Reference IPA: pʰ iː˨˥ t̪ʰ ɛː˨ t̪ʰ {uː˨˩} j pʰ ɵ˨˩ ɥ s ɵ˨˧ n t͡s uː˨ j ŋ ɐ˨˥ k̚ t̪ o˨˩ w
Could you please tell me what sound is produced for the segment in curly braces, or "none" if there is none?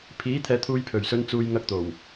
uː˨˧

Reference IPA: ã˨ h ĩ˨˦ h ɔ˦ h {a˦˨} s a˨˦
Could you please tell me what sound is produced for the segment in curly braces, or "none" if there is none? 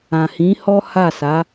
a˦˨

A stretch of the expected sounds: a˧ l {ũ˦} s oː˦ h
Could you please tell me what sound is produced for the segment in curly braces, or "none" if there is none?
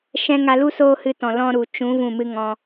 u˦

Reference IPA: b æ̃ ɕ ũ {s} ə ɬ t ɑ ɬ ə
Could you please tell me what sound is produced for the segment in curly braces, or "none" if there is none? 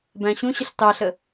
ɕ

